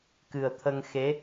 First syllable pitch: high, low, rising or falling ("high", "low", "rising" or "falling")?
low